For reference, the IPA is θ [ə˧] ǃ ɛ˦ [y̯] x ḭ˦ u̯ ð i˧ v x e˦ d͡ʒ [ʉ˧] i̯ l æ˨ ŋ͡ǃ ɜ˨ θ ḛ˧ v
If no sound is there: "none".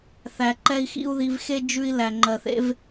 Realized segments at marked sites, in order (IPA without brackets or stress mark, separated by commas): æ˧, i̯, ʉ˧